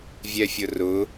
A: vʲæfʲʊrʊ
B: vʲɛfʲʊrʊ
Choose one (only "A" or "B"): B